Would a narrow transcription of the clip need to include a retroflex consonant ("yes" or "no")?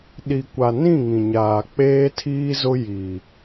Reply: no